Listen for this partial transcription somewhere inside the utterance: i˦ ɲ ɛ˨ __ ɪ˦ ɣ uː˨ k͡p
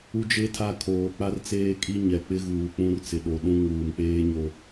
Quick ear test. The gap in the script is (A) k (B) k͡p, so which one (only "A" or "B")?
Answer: B